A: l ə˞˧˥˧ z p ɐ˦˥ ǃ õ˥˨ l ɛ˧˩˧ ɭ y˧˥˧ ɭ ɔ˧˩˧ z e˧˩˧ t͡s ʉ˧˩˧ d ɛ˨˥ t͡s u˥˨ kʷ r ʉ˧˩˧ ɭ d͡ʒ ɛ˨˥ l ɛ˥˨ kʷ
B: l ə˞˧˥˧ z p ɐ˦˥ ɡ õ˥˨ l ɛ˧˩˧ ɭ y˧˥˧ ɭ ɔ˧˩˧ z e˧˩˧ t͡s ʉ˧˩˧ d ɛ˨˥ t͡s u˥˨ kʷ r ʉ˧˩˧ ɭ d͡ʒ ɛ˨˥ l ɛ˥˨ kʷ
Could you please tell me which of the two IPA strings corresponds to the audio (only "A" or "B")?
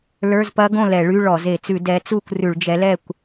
B